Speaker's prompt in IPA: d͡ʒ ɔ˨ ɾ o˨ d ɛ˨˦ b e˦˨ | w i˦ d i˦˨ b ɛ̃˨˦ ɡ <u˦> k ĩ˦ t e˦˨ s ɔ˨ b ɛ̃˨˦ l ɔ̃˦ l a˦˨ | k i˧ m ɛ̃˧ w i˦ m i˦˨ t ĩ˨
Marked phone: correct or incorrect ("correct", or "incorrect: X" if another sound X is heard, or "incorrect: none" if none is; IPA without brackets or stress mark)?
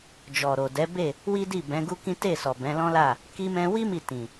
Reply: correct